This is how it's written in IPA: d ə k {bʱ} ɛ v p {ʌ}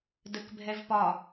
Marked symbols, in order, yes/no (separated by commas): yes, no